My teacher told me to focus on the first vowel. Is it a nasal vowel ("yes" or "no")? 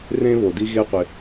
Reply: yes